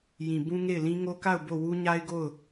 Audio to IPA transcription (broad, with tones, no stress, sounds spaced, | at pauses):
j ĩ˨ b ũ˦ ŋ e˦˨ ɪ̯ l ĩ˦ ŋ o˦ k a˦˨ ʊ̯ b o˦˨ w u˦ ɲ a˦ ɪ̯ ɡ o˦˨ ʊ̯